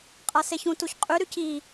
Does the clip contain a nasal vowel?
yes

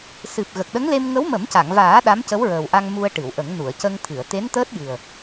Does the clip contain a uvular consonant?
no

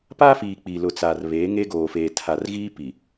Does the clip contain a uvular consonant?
no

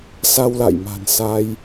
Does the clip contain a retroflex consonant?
no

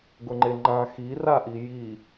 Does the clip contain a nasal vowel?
yes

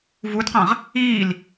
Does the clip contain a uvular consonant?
yes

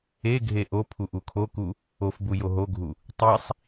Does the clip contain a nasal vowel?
no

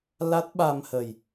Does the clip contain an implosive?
yes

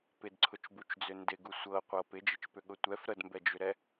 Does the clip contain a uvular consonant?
yes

